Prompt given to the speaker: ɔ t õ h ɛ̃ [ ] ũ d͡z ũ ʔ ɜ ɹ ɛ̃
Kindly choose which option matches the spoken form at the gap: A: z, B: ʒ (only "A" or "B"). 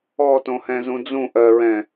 A